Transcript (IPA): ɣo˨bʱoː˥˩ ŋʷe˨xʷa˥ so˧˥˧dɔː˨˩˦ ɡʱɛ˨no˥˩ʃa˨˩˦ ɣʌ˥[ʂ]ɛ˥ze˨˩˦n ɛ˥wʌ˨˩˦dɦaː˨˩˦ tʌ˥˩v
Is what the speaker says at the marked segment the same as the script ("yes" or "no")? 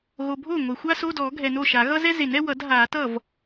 no